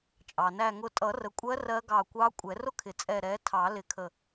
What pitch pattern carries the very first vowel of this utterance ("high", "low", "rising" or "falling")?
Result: low